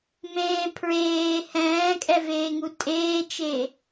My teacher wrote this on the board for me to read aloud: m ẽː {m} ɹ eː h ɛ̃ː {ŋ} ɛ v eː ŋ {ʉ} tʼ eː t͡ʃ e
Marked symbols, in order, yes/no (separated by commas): no, no, no